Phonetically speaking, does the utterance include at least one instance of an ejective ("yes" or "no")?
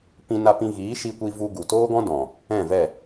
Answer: no